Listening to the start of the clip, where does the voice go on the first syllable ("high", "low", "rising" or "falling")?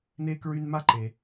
high